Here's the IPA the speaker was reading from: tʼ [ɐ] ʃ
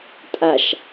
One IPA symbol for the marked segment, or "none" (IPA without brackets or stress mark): a